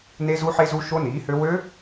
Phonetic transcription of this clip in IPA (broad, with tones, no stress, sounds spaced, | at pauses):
n e˦˥ z u˦˥ ħ e˦˥ z u˦˥ ʃ o˦˥ n iː˩˥ h ø˦˥ w ø˦˥